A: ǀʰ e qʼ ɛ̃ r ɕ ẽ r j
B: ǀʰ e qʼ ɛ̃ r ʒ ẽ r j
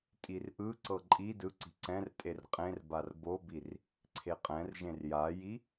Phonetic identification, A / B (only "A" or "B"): B